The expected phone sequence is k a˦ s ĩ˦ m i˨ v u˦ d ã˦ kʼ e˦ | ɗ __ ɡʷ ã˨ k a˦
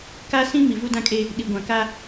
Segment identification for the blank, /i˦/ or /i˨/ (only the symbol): i˨